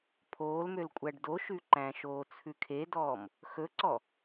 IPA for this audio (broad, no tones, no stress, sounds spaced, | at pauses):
pʰ oː l m ø l kʷʼ æ ɖ d o ʃ ʉ ǃ æ̃ ʃ oː t͡sʰ ʉ kʰ e d ɔː m | x ɵ ǀ ɔ